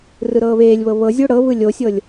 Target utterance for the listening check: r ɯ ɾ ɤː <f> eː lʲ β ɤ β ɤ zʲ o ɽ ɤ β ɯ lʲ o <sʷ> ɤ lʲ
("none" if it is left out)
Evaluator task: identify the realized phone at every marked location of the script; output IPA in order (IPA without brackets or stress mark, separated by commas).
β, sʲ